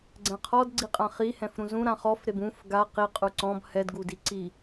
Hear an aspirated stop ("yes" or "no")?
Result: yes